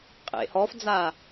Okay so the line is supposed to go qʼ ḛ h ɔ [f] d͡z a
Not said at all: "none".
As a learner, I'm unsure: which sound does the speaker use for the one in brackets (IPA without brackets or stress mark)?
f